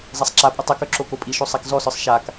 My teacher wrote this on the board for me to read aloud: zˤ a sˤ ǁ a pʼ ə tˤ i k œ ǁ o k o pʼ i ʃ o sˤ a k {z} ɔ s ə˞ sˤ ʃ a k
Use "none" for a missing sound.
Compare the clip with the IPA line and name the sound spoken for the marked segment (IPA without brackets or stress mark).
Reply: z